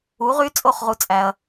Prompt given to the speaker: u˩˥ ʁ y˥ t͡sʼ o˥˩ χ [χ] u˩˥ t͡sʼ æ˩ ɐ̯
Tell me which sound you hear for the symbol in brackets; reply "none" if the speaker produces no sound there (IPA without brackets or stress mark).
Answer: ʁ